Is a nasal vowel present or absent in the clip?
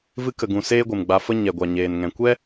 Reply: present